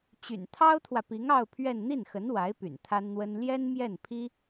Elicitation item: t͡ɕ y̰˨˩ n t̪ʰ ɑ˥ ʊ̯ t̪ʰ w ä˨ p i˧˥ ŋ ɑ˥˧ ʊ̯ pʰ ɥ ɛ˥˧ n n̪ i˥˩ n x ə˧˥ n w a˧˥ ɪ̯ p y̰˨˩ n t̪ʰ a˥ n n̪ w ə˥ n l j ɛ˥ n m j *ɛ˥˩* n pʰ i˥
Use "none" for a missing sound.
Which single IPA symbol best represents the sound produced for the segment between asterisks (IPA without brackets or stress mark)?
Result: ɛ˥˩